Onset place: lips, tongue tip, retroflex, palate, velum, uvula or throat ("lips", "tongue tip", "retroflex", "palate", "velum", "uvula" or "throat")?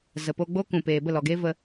tongue tip